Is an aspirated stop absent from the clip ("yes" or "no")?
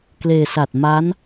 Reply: yes